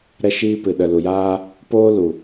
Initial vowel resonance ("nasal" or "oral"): oral